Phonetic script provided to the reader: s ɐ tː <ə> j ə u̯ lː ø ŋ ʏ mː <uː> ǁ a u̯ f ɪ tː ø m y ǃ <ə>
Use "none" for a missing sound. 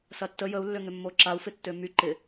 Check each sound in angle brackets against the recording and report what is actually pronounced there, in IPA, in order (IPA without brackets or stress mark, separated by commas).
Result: ə, oː, ɪ